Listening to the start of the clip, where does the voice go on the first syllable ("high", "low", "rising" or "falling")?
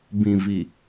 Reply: low